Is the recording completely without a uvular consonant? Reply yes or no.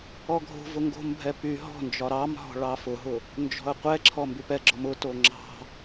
no